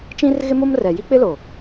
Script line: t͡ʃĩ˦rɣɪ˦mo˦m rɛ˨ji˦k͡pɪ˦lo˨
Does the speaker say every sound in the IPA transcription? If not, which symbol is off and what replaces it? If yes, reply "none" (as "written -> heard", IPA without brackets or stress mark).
none